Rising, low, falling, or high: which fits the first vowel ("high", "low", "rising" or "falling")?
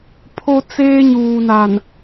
high